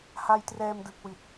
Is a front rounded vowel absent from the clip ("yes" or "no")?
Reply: yes